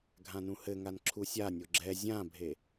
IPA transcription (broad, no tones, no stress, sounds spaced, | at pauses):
ɡʱ ã n ũ h ɘ ŋ a n ǁʰ u sʲ a nʲ o ɡ͡ǁ ɛ zʲ ã bʱ e